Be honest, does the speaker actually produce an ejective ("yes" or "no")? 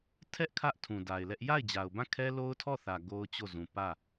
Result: no